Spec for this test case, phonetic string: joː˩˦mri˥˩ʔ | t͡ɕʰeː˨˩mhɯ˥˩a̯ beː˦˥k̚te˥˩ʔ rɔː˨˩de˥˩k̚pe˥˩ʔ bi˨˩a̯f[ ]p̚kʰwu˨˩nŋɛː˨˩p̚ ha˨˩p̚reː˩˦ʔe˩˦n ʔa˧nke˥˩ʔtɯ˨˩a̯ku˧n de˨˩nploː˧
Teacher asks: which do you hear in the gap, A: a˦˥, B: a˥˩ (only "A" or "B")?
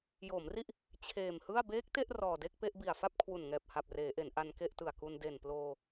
B